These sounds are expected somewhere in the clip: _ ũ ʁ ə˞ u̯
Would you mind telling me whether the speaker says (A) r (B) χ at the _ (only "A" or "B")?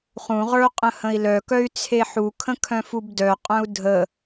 B